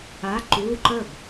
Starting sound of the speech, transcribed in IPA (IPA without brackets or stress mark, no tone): a